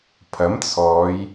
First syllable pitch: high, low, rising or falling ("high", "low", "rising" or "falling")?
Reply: rising